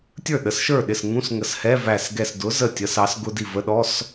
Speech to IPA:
tʲ ə˞˥˩ ɗ ə˨˥ s ʃ ə˞˥˩ ɗ ɪ˥˩ s ŋ ũ˧˥˧ s ŋ ə˧˩ s h ɛ˧˥˧ v æ˧˩ s ɡ ɛ˧˩ s d ʊ˨˥ z ə˥˩ tʲ ə˨˥ s ɑ˨˥ s ɡ ʊ˧˥˧ d i˥˩ v ə˧˥˧ ɗ ɔ˧˥˧ s

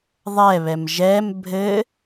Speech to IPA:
ðˤ ɛ β ɛ m ʒ ɛ m bʱ ɘ

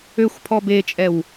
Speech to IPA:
ø xʷ pʰ ɔ b e t͡ʃʼ ɛ w

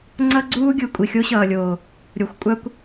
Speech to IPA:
ŋ͡ǀ ʌ˦ ɡ͡ǀ uː˦ ɡʲ ɯ˨ kʷʼ i˨ xʲ o˦ ɕ ʌː˨ lʲ oː˨ | ɾʲ o˨ xʷ kʷʼ a˦ kʷ

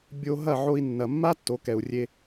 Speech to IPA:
bʲ o˧ ɦ ɐ˦˨ ʕ o˧ i̯ nː ɐ˨ mː a˦ tː o˨˦ k ɛ˨ u̯ rʲ e˧

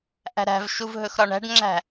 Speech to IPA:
ʔ æ̤ ɾ æ̤ v ʃ u v ɦ ɵ x ɾ ɒ ɳ æ̤ ɖ ŋ͡ǁ æ̤

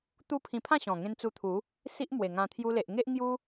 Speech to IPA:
t̪ u˦ pʰ ĩ˧ pʰ ã˥˧ ɕ ɔ̃˨˩ ŋ ẽ˧ n t͡s u˧ t̪ʰ u˨˦ | s i˦ ʔ m w e˨˩ ŋ ã˧ t̪ʰ j u˧ l e˨ ʔ ŋ e˦ ʔ ŋ j u˦

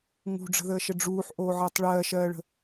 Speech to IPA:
ŋ ṳ ɖ͡ʐ ə̤ ð əː ʃ ə ɖ͡ʐ uː ħ ʔ oː ʕ əː tˤ ɭ ɜː ʃ ɜː ɭ ə̤

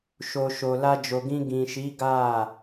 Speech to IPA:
ʃ o˨ ʃ o˨ l a˧ d͡ʒ o˨ ɡ ĩ˧ ɡ ĩ˨ ʃ i˨˦ ɡ a˦˨

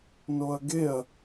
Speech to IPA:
n o ɐ̯ ɡ e ɐ̯

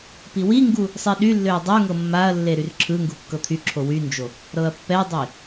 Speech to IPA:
p i w i ŋ ɡ u | sˤ i ɗ y lː ø ɐ̯ dˤ o ŋ ɤ mː a ɐ̯ lː e ɾ y r ǁʰ ɯ ŋ ɡ u kː ɤ t̪ʰ y ǁʰ o w y n d͡ʒ o | ɾ ɤ ɐ̯ pː ɛ dˤ i

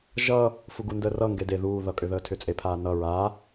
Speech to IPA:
ʒ ʌ | f u ɡ u n d əː r ʌ ŋ ɡ e d e ð uː ð ʌ kʼ ʏ ð əː tʰ ʏ t͡sʼ e pʰ aː n ʌ ɹ a

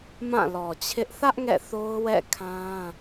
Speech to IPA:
m ã˦˨ l ɔ˨ t͡ɕʰ ɪ˦ ʔ θ ä˦ ʔ ŋ ɛ̰˦˨ θ o˦ ʊ̯ w ɛ̰˦˨ kʰ ã˦

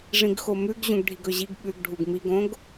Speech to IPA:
ʐ ĩ ɡ x o m ʉ ɡ ʑ ũ ɡ ɖʱ i ɡ ɵ ʑ i ɡ ɓ ʉ ɡ ɖʱ u ɡ m i ɡ õ ɡ

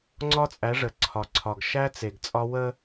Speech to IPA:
ŋ͡ǀ ɒ˦ t͡sʼ æ˨˦ ʐ ə˨ ǀʰ ɒ˨ ǀʰ ɒ˨ ɡ ʃ æ˦ t͡s e˨ ɡ t͡sʼ ɒ˦ w ə˦

